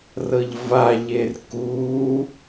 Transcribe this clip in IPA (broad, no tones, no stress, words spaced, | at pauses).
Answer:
rɤʎvaʎer ku